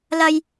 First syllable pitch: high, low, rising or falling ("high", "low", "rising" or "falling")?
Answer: high